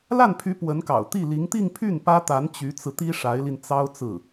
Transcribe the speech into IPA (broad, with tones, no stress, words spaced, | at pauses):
la˥˩npʰy˧˥ pwə˧˥nkɑ̰˨˩ʊ̯ t̪i˥˩li˧˥ŋ t̪i˥˧ŋpʰy˥˩n pä˥t̪a˧˥n t͡ɕy˧˥t͡sɹ̩˧t̪i˥ ʂa˧˥ɪ̯li˧nt͡sɑ˥ʊ̯ t͡sɹ̩˥˩